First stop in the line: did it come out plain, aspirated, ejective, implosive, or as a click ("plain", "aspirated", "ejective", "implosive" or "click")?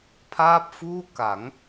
aspirated